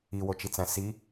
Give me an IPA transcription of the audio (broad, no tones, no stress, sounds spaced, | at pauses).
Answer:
i w o t͡ʃ i t͡s æ̃ s i